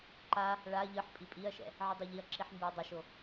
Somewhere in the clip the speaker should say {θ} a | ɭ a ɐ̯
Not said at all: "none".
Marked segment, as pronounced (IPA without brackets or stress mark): ǃ